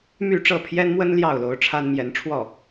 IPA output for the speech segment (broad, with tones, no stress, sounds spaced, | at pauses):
m y˥˧ ʈ͡ʂ ɤ˥˩ pʰ j ɛ˥ n m w ə˥ n l j ɑ˥˩ ʊ̯ l o˧˥ ʊ̯ ʈ͡ʂʰ a˥ n m j ɛ˧˥ n ʈ͡ʂʰ w ɔ˥˩